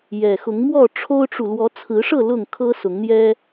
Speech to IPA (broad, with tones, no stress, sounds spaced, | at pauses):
j ɛ˨˩ x ʊ˨˦ ŋ m w ɔ˥˨ ʈ͡ʂʰ o˦ ʊ̯ ʈ͡ʂ u˨ l w ɔ˨˦ t͡sʰ ɹ̩˨˦ ʂ ɤ˥˨ l ʊ˥˨ ŋ kʰ ɤ˦ s ʊ˨˦ ŋ n̪ j ɛ˦